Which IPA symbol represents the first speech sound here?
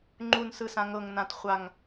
ŋ͡ǃ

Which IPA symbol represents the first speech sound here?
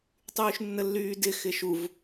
tˤ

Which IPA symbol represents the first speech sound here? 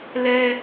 l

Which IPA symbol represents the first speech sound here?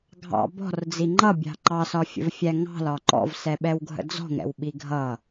ɡʱ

